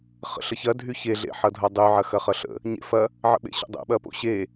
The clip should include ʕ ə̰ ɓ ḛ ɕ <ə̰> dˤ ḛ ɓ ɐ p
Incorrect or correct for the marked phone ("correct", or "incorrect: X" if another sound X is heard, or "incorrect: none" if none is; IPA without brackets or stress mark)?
correct